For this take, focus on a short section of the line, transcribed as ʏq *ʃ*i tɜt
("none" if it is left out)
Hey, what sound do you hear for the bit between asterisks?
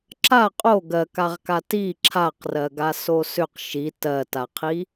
ʃ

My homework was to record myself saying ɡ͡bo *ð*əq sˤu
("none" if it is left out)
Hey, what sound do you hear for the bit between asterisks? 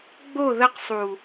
ð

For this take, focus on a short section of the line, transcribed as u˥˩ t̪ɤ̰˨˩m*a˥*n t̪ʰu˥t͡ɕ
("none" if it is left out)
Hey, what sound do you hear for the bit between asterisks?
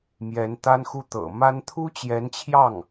a˥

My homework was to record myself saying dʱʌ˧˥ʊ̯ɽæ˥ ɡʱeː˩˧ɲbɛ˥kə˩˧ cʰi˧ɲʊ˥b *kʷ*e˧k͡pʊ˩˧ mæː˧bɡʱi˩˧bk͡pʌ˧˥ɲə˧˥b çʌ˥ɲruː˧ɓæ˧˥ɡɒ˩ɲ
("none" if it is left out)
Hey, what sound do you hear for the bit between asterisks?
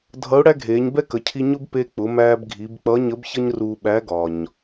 p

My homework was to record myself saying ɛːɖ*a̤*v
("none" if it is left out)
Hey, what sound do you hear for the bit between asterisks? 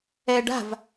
a̤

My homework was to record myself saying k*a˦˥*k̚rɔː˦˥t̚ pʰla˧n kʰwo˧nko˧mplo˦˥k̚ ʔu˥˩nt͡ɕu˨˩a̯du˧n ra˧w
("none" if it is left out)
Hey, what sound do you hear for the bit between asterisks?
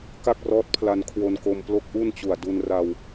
a˥˩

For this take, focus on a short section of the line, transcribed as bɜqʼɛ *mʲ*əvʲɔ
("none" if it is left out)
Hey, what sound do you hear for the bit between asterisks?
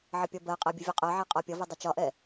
bʲ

